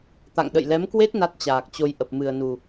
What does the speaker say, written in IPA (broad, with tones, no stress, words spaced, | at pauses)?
t̪a̰˧˨ŋɗə̰˧˨jlɛ˨˦mkwe˦˥t̚ na˦˥t̚t͡ɕaː˨˩k̚t͡ɕo˧jʔə˨˩p̚ mɨ˨˩ə̯nu˨˩